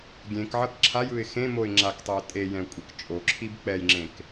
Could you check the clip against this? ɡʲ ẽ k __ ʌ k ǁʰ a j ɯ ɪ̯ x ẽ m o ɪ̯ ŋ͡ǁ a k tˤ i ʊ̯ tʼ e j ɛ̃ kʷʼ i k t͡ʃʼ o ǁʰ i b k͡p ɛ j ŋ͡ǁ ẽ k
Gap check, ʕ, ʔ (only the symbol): ʕ